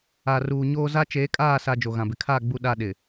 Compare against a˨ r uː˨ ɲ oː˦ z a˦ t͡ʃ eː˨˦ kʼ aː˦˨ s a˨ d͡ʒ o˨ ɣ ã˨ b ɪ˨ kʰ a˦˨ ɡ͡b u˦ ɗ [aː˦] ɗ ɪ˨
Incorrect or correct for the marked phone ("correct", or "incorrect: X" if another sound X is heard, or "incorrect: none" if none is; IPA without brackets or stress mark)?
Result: incorrect: a˦